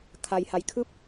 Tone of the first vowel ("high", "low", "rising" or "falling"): low